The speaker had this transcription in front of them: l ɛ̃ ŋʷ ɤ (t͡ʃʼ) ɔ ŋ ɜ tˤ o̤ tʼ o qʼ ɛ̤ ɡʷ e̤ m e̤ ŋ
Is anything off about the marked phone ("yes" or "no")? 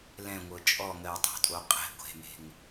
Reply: no